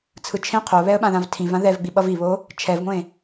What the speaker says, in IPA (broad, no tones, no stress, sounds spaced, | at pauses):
t͡sʰ ɯ t͡ʃʰ ẽ qʰ o β ɛ ə̯ ɓ ã ð ã v tʰ ĩ v ã ð ɛ v ɡ͡b i ɓ ʌ v i β o | t͡ʃʰ ɛ v ŋʷ ẽ